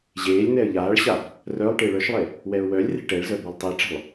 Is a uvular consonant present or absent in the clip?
absent